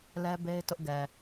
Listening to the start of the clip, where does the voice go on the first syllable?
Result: high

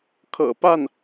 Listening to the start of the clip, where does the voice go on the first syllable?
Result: low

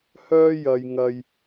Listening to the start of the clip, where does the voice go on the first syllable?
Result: high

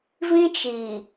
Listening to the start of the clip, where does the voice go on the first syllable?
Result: high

